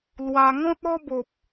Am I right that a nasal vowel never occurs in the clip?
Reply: no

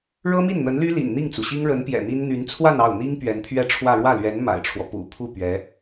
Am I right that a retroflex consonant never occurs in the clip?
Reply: no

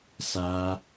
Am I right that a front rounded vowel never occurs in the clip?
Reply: yes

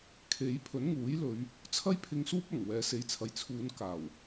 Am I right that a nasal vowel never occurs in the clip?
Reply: yes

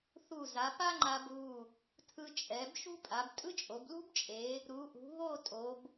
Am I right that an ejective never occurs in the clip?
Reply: no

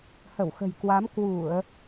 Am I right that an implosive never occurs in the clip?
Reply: yes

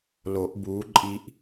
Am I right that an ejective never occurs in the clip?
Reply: no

